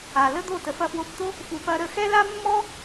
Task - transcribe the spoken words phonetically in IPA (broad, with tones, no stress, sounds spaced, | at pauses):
a˨ l ə˦ d̪ o˦˨ t ə˨ f ɐ˦˨ f w o˧ p t̪ o˦ | f u˨ p ɐ˧ ɾ ə˦˨ x ɛ˦ l a˦ mː ɔ˦